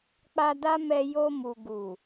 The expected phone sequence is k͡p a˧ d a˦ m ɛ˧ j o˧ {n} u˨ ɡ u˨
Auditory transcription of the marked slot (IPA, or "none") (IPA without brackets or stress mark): m